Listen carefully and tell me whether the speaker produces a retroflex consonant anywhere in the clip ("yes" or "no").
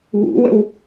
no